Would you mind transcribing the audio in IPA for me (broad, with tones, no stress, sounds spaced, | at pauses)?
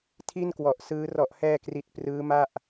tʰ i˥˩ n k w ɔ˨˩ ʔ s ɯː˦˥ r ɔ˨˩ ʔ h ɛː˧ k r i˨˩ t̚ p r ɯː˦˥ m a˥˩ ʔ